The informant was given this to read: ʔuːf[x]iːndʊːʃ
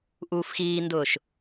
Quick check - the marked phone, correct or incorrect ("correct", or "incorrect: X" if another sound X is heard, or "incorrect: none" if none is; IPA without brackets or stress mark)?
correct